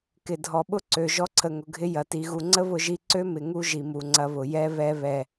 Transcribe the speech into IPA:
k ɪ˨ dʱ ɔ˨ ɓ ʊ˦ ǀ ø˨ ʒ ɔ˧ ǀʰ ə˨ ŋ ʊ˨ ɡʱ ɪ˧ j ɐ˨ t i˨ ɣ u˨ ŋ͡ǀ ə˦ β ʊ˦ ʒ i˦ ǀ ø˦ m ɪ˨ ŋ u˦ ʒ i˨ m u˨ ŋ͡ǀ ɐ˧ β ʊ˨ j ɛ˧ β ɛ˧ β ɛ˨

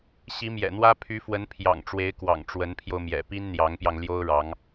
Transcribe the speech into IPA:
ɕ i˧˥ m j ɛ̰˨˩ n̪ w ä˥ pʰ y˧˥ f w ə˧˥ n pʰ j ɑ̰˨˩ ŋ ʈ͡ʂ w e˧˥ ɪ̯ k w ɑ̰˨˩ ŋ ʈ͡ʂ w ə˧˥ n pʰ j o˧ ʊ̯ m j ɛ̰˨˩ p i˥ n n̪ j ɑ˧˥ ŋ p j ɑ˧ ŋ l j o˥ ʊ̯ ɻ ɑ˧˥ ŋ

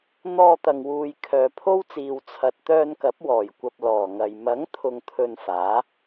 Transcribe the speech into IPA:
n̪ ɔː˧ t̪ ɐ˨ ŋ w uː˨ j kʰ œː˨ pʰ o˥ w t͡s iː˨ w t͡sʰ ɐ˨ t̚ t̪ œː˧ n k ɐ˨˥ p̚ w ɔː˨˩ j kʷ ɐ˨ p̚ l ɔː˨˩ ŋ ɐ˨ j m ɐ˨˥ ŋ t̪ʰ ʊ˧ ŋ t̪ʰ ɵ˧ n f aː˨˥

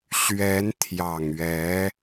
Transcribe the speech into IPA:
ɕ ɥ ɛ˧˥ n t̪ʰ j ɑ˨˩ ŋ ɥ ɛ˧˥

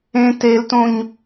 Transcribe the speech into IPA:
ẽ t e l t õ ɲ

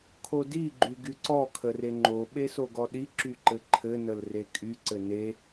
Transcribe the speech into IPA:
kʰ o d i ɡ͡ǃ y ɡ y ǀ ɔ kʰ ə r e ŋ͡ǃ o ɓ e s o ɡ ɔ ɗ i ǁ y ǃ ɘ ǃʰ ɘ n ə l r e kʼ y ǀ ɘ n e

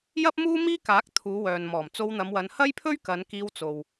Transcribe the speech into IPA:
j ɐ˥ p̚ m uː˥ m iː˥ k aː˨˥ k̚ t̪ʰ uː˨˧ w œː˨ n m ɔː˨˩ m t͡s o˧ w n̪ ɐ˨˧ m w ɐ˨˧ n h ɐ˥ j pʰ ɵ˥ ɥ k ɐ˨˧ n k iː˧ w t͡s o˨ w

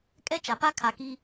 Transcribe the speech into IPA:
kʼ ɛ˦ t͡ʃ a˨ p a˦ kʰ a˨ k i˦

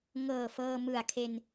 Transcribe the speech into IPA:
ŋ ɤː˨˩ f ɤː˧ m ɯ˨˩ a̯ kʰ e˧ n

